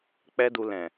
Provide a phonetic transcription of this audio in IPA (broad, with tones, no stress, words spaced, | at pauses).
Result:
k͡pɛ˦du˧ lɛ̃˨